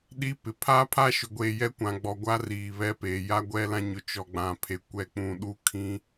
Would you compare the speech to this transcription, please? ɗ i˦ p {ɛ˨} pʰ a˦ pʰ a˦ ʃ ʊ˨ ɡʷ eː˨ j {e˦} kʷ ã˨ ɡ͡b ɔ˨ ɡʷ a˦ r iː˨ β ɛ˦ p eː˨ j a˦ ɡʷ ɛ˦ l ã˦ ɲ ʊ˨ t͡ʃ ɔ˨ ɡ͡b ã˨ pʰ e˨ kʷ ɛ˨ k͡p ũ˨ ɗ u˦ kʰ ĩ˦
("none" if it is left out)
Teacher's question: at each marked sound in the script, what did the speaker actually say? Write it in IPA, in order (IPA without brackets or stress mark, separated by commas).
ɪ˨, ɛ˦